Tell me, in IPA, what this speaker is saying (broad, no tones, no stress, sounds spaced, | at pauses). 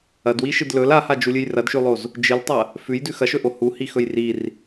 ɐ d w i ʃ ɨ d l ɵ l a h a d͡ʒ u lʲ ɨ j r ɐ d ʃ ʉ lˠ o z | d͡ʒ ɨ l tˤ ɐ | f ʉ j d ʉ x ɐ ʃ ɵ ʔ o h u h i x ɵ j r i r